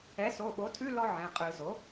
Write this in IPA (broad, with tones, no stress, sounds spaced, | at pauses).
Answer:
ɛ˩˥ s o˩˧˩ ɓ o˩˥ tʰ ʉ˧˥˧ l ɔ˥ ʕ ɛ̃˩˧˩ qʼ ɯ˧˩˧ z o˩˥